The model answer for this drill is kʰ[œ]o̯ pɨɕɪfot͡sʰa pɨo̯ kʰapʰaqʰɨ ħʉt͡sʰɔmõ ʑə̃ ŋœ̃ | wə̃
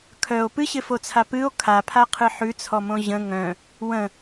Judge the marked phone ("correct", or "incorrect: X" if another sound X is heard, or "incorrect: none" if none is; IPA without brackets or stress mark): correct